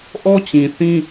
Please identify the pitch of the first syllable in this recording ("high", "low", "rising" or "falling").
high